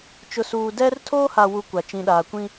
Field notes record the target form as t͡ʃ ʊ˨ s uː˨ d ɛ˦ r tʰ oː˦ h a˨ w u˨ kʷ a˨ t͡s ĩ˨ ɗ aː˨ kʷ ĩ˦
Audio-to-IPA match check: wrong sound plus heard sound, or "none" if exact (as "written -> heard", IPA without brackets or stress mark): t͡s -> t͡ʃ